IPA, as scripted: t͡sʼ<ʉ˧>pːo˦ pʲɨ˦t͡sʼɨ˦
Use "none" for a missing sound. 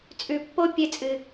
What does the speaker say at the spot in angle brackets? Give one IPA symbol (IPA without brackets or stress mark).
ʉ˧